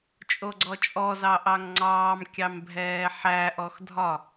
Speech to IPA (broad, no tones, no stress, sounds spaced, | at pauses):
t͡ʃʼ o ɡ͡ǀ ɔ t͡ʃʼ ɔ z ɑ ʔ ɑ ŋ ŋ͡ǀ ɑː m kʲ ɑ m bʱ ɛː ħ æ ʔ ɔ x dʱ ɒ